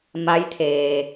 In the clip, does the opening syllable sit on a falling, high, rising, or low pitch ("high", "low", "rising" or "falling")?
rising